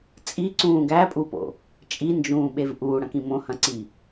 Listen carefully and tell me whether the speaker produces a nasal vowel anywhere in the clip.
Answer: yes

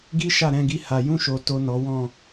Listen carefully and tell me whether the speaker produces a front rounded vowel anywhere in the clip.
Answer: no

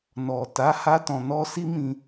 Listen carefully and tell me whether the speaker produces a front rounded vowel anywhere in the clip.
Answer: no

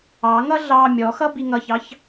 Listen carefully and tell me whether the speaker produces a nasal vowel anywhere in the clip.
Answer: no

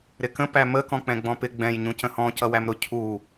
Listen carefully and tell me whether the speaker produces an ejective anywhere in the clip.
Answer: no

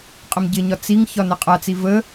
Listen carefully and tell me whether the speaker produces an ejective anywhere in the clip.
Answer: yes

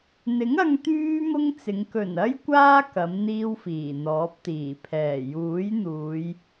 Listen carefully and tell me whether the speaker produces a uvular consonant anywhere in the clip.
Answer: no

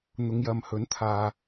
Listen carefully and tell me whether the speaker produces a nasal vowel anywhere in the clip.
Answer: no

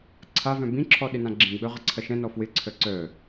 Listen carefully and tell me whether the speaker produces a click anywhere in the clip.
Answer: yes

